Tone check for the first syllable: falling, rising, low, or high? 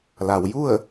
low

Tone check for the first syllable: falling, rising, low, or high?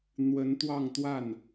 rising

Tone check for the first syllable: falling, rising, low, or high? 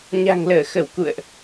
low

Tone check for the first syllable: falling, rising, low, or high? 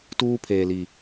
high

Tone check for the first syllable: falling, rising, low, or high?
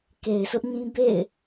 low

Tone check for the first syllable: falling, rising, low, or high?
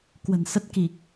low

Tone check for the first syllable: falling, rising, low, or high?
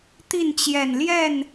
falling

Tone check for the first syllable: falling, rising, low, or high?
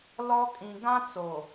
high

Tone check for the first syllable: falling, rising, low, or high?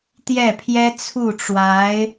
falling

